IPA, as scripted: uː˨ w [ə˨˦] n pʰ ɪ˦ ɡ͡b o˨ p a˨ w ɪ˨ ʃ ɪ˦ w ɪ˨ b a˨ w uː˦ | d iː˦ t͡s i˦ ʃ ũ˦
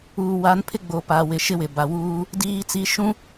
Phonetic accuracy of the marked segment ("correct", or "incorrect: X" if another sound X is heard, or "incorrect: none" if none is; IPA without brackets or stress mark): incorrect: a˨˦